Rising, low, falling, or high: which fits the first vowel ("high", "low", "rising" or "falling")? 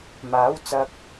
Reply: rising